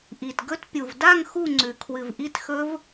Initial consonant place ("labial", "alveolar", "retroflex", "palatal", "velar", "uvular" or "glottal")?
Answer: glottal